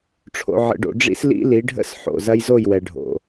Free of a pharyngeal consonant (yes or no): no